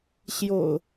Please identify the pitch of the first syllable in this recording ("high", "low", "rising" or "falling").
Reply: low